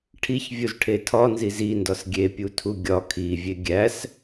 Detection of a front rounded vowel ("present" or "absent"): absent